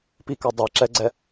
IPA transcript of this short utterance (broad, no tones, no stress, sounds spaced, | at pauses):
p i k a dˤ e ǁ ɛ ɡ͡ǀ ɛ